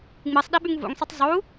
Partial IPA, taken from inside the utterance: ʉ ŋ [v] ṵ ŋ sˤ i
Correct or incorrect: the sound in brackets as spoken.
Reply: correct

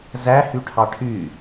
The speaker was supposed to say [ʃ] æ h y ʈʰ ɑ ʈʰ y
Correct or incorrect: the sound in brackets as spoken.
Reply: incorrect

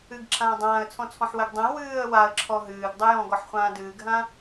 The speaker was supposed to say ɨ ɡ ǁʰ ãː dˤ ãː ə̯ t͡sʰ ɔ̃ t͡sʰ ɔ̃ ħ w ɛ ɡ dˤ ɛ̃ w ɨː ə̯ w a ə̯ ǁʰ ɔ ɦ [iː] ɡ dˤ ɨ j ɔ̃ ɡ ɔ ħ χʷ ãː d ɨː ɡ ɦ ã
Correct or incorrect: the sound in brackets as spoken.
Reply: incorrect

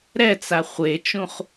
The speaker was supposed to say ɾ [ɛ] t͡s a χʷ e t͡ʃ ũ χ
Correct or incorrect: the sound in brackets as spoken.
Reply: correct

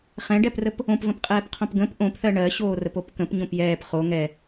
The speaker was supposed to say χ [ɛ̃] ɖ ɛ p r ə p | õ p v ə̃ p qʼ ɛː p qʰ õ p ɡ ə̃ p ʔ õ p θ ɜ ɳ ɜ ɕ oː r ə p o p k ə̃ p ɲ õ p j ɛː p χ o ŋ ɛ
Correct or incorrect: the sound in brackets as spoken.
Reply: correct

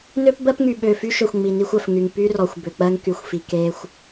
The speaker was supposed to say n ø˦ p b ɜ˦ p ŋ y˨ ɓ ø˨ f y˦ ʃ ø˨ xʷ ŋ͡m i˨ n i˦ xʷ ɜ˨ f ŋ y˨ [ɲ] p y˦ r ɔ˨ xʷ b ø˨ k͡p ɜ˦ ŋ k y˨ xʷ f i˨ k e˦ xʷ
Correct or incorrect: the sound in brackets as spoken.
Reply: incorrect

